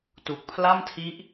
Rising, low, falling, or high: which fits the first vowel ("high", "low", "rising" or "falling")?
low